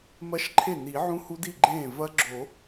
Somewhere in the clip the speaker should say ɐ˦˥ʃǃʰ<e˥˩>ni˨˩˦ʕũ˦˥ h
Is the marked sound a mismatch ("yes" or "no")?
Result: no